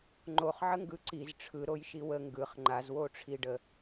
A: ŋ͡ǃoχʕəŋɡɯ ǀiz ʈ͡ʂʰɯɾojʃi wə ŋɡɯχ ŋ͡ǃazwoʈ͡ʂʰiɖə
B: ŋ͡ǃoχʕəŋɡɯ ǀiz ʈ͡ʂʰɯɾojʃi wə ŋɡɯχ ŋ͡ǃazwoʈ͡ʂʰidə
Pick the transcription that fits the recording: A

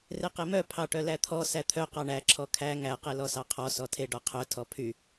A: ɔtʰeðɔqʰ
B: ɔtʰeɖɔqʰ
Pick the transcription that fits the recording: B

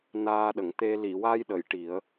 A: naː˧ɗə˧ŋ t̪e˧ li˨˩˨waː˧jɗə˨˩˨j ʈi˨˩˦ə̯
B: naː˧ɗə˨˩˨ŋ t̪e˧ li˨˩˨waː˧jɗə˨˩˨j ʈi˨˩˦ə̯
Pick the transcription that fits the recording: B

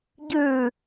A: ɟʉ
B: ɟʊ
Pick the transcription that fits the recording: A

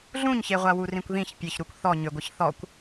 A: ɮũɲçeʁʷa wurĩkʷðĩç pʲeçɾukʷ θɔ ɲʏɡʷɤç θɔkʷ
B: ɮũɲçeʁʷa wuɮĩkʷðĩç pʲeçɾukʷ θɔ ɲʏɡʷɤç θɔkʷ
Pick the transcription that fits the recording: A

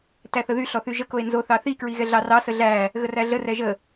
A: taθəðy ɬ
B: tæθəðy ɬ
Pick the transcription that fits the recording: B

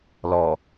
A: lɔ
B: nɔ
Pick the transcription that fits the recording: A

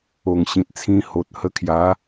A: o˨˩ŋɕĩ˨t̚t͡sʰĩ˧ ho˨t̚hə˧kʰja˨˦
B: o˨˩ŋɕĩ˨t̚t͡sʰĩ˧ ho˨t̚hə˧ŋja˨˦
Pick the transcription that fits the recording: A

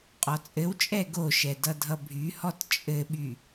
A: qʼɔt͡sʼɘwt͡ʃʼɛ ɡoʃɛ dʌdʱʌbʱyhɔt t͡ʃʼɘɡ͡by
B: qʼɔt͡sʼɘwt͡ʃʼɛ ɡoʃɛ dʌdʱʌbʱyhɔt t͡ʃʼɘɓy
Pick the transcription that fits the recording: B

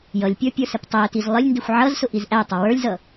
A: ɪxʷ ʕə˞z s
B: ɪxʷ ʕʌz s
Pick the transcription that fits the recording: B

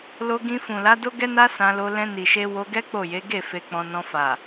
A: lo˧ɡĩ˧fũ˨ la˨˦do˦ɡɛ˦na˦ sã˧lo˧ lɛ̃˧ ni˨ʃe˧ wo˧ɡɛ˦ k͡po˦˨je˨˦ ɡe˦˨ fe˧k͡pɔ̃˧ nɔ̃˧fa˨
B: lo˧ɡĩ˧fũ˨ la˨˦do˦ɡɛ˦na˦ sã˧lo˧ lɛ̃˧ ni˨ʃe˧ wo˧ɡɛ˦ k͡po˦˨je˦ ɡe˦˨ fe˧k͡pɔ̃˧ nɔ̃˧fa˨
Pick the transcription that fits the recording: A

